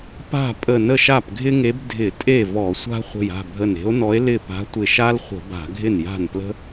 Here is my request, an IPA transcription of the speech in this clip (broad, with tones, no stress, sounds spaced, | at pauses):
p a̤˥˩ pʼ ə˧˩ n ə˥˩ ʃ a˥˩ p ɡʱ ɪ˥ ŋ e˧˥ b dʱ ɪ˧˩˧ tʼ e˥˩ v ɔ˧˩˧ sʷ a̤˥ χʷ ə̤˧˩ j a̤˥˩ bʱ ə˧˩ n e̤˧˥ o̯ n ɔ˧˥ e̯ l ɪ˥˩ p a̤˧˥ tʷ ɪ˧˩ ʃ a˥ l χʷ ə̤˧˩˧ b a̤˧˩˧ ɡʱ ɪ˥˩ n j a̤˥˩ n p l ə̤˥